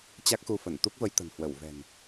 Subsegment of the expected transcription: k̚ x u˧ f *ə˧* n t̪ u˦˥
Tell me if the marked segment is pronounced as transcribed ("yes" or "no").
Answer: no